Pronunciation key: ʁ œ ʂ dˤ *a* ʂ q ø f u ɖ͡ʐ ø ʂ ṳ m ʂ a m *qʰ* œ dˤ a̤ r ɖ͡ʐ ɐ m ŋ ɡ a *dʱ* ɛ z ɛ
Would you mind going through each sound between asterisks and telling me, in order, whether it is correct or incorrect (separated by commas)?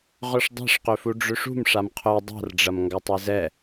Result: incorrect, correct, incorrect